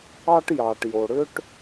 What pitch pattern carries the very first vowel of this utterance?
high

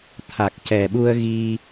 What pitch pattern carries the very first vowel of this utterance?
low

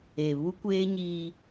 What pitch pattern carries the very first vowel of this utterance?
low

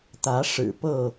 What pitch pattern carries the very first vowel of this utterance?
rising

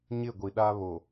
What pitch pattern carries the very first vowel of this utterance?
falling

